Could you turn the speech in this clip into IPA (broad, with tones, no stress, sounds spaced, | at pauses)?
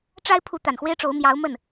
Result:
ʈ͡ʂ a˥ ɪ̯ pʰ u˧˥ t̪ a˨˩ n x w e˥ ɪ̯ ʈ͡ʂ o˧˥ ʊ̯ m j ɑ˧˥ ʊ̯ m ə˥˩ n